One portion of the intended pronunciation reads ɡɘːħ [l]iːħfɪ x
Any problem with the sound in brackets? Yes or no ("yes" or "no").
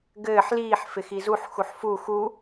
no